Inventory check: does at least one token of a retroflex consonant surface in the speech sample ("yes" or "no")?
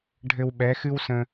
yes